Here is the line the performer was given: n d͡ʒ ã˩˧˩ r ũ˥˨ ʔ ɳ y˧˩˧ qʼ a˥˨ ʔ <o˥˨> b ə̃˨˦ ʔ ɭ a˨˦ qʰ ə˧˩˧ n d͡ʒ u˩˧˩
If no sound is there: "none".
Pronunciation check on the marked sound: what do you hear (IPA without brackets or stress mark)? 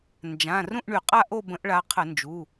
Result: o˥˨